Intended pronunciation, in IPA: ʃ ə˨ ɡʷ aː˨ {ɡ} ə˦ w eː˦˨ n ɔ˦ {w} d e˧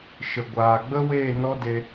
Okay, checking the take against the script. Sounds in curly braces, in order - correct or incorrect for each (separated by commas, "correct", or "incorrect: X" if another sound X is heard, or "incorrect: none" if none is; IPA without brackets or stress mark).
incorrect: ɡ͡b, incorrect: none